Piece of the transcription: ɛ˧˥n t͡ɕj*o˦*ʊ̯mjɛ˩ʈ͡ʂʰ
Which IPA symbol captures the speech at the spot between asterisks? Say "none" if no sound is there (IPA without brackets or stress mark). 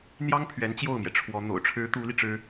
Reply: o˥˩